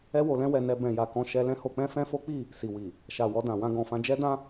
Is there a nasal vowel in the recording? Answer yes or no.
yes